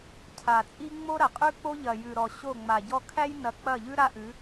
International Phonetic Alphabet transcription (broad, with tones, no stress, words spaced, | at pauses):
cʰa˨t͡sʼi˦ ŋ͡mo˦ɾɐ˨qʼʉ˦k͡po˦ ʎɐ˨jʉ˨ɾɔ˨ ɕo˦˨ŋ͡ma˨ɟɔ˦ kʰæ˦jnɐ˨k͡pɐ˦˨ʎʉ˦ ɾa˦ʔʉ˨˦